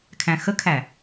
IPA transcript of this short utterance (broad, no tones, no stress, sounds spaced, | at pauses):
kʰ æ̃ x ə kʰ æ